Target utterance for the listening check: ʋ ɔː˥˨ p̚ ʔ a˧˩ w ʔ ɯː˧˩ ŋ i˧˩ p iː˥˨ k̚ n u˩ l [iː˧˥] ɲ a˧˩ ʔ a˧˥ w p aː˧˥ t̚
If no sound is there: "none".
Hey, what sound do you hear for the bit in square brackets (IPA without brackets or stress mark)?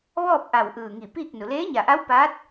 eː˧˥